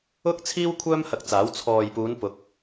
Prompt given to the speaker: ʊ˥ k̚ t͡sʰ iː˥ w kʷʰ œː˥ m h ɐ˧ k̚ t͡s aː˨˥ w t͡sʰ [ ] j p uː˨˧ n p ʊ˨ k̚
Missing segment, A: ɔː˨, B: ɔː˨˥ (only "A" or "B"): A